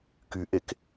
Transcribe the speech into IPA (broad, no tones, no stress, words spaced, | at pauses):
kyʔek